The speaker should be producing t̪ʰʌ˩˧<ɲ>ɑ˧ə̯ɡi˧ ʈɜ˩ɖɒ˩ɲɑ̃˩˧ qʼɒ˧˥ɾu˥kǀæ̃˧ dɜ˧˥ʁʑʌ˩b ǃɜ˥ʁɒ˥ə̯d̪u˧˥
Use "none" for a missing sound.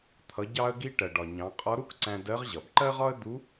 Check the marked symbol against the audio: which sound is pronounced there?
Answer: ɟ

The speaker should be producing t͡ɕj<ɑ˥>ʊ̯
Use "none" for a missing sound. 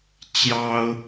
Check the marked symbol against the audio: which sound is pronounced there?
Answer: ɑ˥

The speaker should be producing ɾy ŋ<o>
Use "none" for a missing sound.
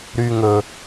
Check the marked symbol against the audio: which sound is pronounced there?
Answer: ɵ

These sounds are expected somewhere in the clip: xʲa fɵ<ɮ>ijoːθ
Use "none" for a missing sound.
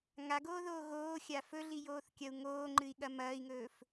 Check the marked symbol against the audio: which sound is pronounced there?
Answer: ɮ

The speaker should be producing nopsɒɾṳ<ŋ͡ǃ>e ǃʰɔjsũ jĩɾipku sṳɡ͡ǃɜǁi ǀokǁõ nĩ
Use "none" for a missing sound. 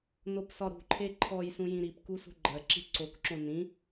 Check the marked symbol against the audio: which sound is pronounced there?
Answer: ǃʰ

